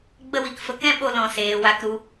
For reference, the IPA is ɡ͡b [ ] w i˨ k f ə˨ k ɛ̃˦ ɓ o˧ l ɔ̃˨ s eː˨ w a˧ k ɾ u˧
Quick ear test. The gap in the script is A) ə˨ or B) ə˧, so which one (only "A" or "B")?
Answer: B